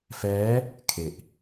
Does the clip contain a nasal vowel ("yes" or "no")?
no